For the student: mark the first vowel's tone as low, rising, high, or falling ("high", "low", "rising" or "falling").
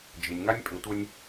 low